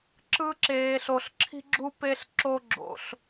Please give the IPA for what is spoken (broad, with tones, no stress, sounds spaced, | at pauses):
ǁ ɯ˧ ǁ eː˩ ɬ o˩ ɬ ǁʰ i̤˧ ɡ͡ǁ u˧ p e˧ ɬ ǁ o˧ ɡ͡ǁ o̰˩ ɬ